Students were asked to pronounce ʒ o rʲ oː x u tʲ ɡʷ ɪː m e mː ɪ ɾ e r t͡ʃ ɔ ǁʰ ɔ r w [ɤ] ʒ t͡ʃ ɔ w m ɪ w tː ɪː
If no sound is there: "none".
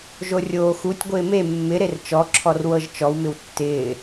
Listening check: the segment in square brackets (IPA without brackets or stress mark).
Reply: ɤ